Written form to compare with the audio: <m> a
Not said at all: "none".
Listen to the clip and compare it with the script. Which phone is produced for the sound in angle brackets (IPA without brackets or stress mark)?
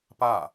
p